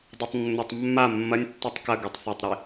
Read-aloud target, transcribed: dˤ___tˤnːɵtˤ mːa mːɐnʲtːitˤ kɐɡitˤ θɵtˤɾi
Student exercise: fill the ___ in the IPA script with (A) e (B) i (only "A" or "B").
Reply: A